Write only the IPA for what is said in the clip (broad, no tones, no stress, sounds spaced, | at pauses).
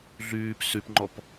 ɮ yː p s y p ŋ͡ǃ ɔ p